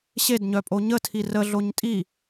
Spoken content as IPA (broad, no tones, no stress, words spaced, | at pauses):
ɕedɲœpʼo ɲətʰi rəɮoɲ tʼi